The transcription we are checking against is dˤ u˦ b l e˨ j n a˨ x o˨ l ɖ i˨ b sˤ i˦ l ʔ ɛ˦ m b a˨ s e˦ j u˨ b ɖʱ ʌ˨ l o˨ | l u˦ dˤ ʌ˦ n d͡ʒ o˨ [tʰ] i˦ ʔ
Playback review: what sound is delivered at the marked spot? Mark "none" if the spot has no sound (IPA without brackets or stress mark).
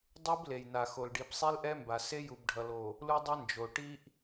ʈ